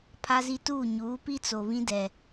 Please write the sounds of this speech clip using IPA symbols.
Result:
pʰ a˦ z i˦ t uː˦˨ ɲ uː˨˦ p i˦ t͡s o˨ β ĩ˦ d ɛ˨

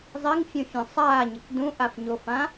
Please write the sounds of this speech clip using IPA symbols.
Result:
zˤ i ŋ fʲ ũ fʲ õ sˤ aː ɲ ɪ k d ũ ʔ a f ɲ o f ã

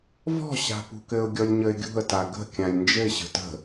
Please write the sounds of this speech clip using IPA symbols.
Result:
v ɔ̤ ɕ a̤ p ṳ k ɘ ʊ̯ ɡʲ ɔ lʲ ɲ ə ɪ̯ ɡʲ ṳ ə̯ t a ɡ ə̤ kʲ ã lʲ n d͡ʒ ɘ ɪ̯ ɕ ə̤ t ə̤

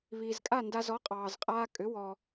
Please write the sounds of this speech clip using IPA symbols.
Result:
β iː˩ z kʼ a˥˩ n d a˧ z ɔ˩˥ qʼ ɑː˩ z qʼ aː˧ kʼ ʏ˩˥ w ɔ˩

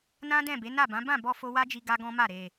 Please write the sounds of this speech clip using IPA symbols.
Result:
n ã˦ d ɛ̃˦˨ b e˨˦ n a˦˨ b ã˨˦ b ã˦˨ b ɔ˧ f o˧ w a˦ d͡ʒ i˧ ɡ a˦ ɡ ɔ̃˦ m a˦˨ ɾ e˨

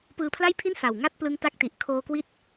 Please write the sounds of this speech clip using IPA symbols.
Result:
p ɯː˧ pʰ l a˥˩ j pʰ i˥˩ n s a˨˩ w ŋ a˦˥ t̚ p l ɯ˦˥ ŋ t a˦˥ k̚ t i˨˩ ʔ kʰ oː˧ k w i˦˥ t̚

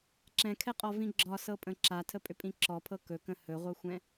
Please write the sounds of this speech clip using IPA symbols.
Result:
ǁ ɛ̃ kʰ ɛ qʼ ɔ v ĩ ɡ͡ǁ ɒ s ɤ pʼ ə̃ ǁ a tʰ ə pʼ ʏ pʼ ĩ ǁ ɔ pʰ ɤ k ɵ k ə̃ h ɵ ʁʷ ɤ xʷ ɛ̃

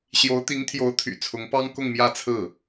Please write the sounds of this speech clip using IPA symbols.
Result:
ɕ j o˧˥ ʊ̯ t̪ i˧˥ ŋ t̪ʰ j o˧˥ ʊ̯ t̪ʰ y̰˨˩ t͡sʰ ʊ˧˥ ŋ p ɑ˥ ŋ k ʊ˥˧ ŋ m j ä˥˧ t͡sʰ ɹ̩˥˩

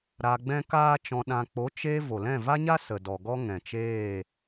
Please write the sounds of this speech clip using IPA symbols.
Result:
ɾ a˧ ɡ͡b ɛ̃˦ k aː˦ t͡ʃ ɔ̃˧ ɗ ã˧ k͡p o˨˦ t͡ʃ eː˧ v o˨ l ɛ̃˦˨ v a˦ ɲ a˦ s ə˨ d ɔ˨ ɡ ɔ˦ ŋ ɛ̃˨ t͡ʃ eː˦˨

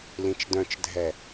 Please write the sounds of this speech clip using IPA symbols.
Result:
l ĩ t͡ʃ d œ̃ t͡ʃ dʱ ɛ

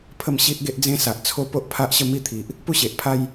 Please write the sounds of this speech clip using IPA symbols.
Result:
pʰ ə˥˧ m ɕ i˦ ʔ ɡ e˦ ʔ d͡z ẽ˦ s a˨ ʔ t͡sʰ o˦ p o˦ ʔ pʰ a˦ ʔ ɕ ə˥˧ m i˥˧ t̪ʰ i˨ ʔ | p u˥˧ ɕ e˨ ʔ pʰ a˦ j

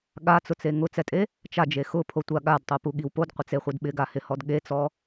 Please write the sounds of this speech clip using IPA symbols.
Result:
ɠ a t͡s ʊ t͡s e ŋ ʊ t͡s ɛ tʼ e | t͡ʃ a d͡ʒ e x ʊ pʰ o tʷ a ɠ a d tˤ u p u ɠ i w p o d qʷ ɪ t͡s e χʷ e d ɓ ɪ ɡ a h ɪ h ɔ d ɠ e t͡s ɔ

